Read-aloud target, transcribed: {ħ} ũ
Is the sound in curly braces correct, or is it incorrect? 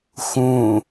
incorrect